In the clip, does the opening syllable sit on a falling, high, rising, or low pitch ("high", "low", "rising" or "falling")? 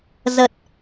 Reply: low